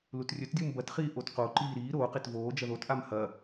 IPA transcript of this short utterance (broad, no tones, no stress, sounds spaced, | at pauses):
l u t rʲ ɵ t dʲ u m b ɐ t χ iː ʔ o t q o ǃ iː ɾ iː ɾ oː q e t v oː d͡ʒ ɐ ð o t ʔ a m h ɐ